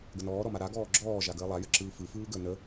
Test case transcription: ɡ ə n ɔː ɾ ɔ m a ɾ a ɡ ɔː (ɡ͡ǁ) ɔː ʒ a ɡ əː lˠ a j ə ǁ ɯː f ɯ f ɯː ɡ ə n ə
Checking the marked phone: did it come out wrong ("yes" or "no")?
no